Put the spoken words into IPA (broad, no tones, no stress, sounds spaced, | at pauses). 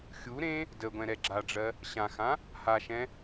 xʲ u ɾ ẽ | d ə ɡʷ ɛ̃ ɾ ɛ ɡ͡ǁ a ɖ͡ʐ ɜ | ɕ ã x ã | h a ʃ ɛ̃